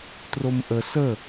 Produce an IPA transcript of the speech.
t r o m ʔ ə s ə

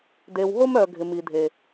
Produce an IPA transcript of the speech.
d e˨ w ɦ o˦ m œ˨ ɡʱ ɪ˨ m i˨ dʱ e˨

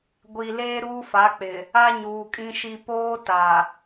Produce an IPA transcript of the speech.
ɡʷ i˨ l eː˦ ɾ uː˦ f a˨˦ k͡p ɪ˨ | a˦ ɲ uː˨ kʼ ĩ˦ ʃ i˦ p oː˦ t a˨

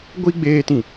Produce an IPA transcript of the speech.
ɡʷ i˨ ɡ͡b eː˨ t ĩ˨

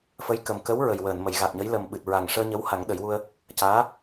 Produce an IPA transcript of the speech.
f ə˧˥ j k ə˨˩ m k ə˧˥ w ɹ ə˨˩ j w əː˨˩˨ n m ə˨˩˨ j ɣ a˨˩ t̚ ɲ ə˧˥ j l ə˨˩ m ɓ ɨ˨˩ t̚ ɹ a˨˩ ŋ ʂ əː˧ ɲ ə˧˥ w h a˨˩˦ ŋ ɗ ə˨˩˦ j w u˧ ə̯ | c aː˧˥

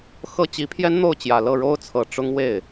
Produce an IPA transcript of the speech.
x ɤ˥˩ t͡ɕ i˧˥ pʰ j ɛ˥ n n̪ o˥˩ ʊ̯ t͡ɕ j ä˨˩ l ɤ˥˩ ɻ o˥ ʊ̯ t͡sʰ ɤ˨˩ ʈ͡ʂ ʊ˥ ŋ w e˥˩ ɪ̯

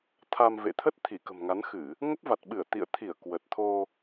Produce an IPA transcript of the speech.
t̪ʰ a˧ m v ḛ˧˨ t̪ʰ ə˦˥ t̚ t̪ʰ i˧˩ k ə̤˨˩ m ŋ a˨˦ n x ɨ˧˩˨ | ŋ ə˦˥ p̚ v a˨˩ t̚ ɓ ɨ˧˩ ə̯ t̪ ḭ˧˨ ə̯ t̪ʰ i˧˩ ə̯ k w ə˨˩ t̚ t̪ʰ o˧

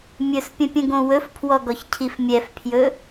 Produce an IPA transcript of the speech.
mʲ ɵ s pʲ ə̃ pʲ ə̃ ɡ õ w ɵ f pʰ w ɔ ɡ ɔ ç cʰ i f mʲ ɛ f pʰ j ɵ

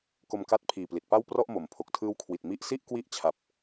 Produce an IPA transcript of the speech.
k o˧ m k a˦˥ t̚ pʰ iː˨˩ p l i˨˩ t̚ p a˥˩ w p r ɔ˥˩ ʔ m o˩˦ m pʰ o˨˩ k̚ tʰ ɯː˦˥ w kʰ w i˨˩ t̚ m i˦˥ ʔ s i˥˩ ʔ k w i˦˥ ʔ t͡ɕʰ a˨˩ p̚

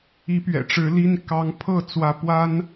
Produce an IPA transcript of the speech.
i˧˥ p ɥ ɛ̰˨˩ ʈ͡ʂ ɻ̩˧˥ l i˥ n k ɑ˧˥ ŋ pʰ ɤ˥˩ t͡s w ä˧˥ p w a˥ n

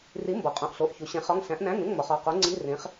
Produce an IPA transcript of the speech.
r i˨˥ m b ɒ˩˧ qʼ õ˩˧˩ ʔ ɬ o˩˧˩ ʔ ç u˩˧ ɕ ẽ˨˥ χ ɒ˧˥˧ ŋ ɬ æ̃˨˥ ʔ n æ̃˧˥˧ ŋ ẽ˧˥˧ ŋ m ɒ˩˧ χ ɒ˩˧˩ q o˨˥ ŋ͡ǀ i˧˥˧ r ẽ˨˥ χ

